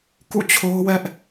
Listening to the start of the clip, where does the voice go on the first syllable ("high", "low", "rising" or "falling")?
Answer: falling